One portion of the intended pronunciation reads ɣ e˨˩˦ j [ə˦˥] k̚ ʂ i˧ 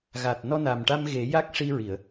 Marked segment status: incorrect: a˦˥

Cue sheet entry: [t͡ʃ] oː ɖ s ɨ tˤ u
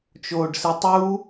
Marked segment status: correct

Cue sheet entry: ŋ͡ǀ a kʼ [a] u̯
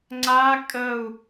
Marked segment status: incorrect: ə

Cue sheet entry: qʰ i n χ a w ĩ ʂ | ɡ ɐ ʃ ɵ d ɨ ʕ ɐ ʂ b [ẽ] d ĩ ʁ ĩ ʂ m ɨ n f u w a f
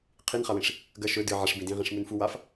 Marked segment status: incorrect: ĩ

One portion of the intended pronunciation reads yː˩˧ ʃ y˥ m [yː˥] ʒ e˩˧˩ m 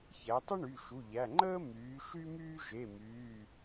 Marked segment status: correct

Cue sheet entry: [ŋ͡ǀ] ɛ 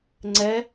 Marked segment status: correct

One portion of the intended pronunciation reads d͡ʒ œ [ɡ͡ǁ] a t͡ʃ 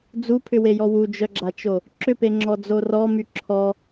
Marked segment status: correct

